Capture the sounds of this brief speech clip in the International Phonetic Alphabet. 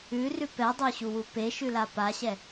ʉ r ʉ p ɛ dˤ ø ɕ u w u p e ʃ ʉ l a p a ɕ ɛ

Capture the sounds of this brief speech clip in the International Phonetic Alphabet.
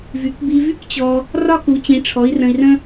v y˩˥ k b i˧ v y˥ k t͡ɕ ɔ˧ | r ɒ˥ k u˩˥ t͡ɕ ĩ˩˥ ʈ͡ʂʰ ɔ˩˥ i̯ r ə̃˧ i̯ r ə̃˥

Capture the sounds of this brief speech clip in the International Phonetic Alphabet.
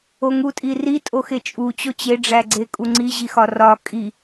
o ŋ u tʼ i r i tʼ o x e t͡ʃʼ u t͡ɕ o t͡ɕ e ɖ͡ʐ æ ɡ͡ǀ e kʼ u ŋ͡ǀ i ʑ i x ɒ r ɒ kʼ i

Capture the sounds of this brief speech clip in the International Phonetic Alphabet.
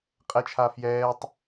qʼ ɛ t͡ʃʰ a f j ɛː tˤ

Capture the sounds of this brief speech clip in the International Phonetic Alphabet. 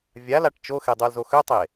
vʲ a l a ʈ t͡ʃ o x e dˤ o l z o x ø tˤ e

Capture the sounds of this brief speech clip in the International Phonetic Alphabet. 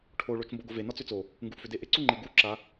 ʈʰ o ɭ o t͡ʃ m b o ɡ o v e n ɒ t͡s ʏ t͡s o | ŋ ɡ u ʔ f ʏ d e ʔ ɪ ǀ u ŋ͡ǃ e ɡ u ǁ a

